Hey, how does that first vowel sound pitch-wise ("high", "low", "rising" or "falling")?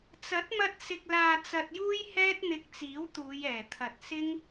rising